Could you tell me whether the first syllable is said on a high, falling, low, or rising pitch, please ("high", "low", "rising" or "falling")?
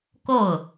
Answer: falling